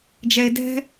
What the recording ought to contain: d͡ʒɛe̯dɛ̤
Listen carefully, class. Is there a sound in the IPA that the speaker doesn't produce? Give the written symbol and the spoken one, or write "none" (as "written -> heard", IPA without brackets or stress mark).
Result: none